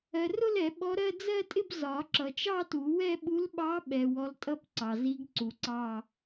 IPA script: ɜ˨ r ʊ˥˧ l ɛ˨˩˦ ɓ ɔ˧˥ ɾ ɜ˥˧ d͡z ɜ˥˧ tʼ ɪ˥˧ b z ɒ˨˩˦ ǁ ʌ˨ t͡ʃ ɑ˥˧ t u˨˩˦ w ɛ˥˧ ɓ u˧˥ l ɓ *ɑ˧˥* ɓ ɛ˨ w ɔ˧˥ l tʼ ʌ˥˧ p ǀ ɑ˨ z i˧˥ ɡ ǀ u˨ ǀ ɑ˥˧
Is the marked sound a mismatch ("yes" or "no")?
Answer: no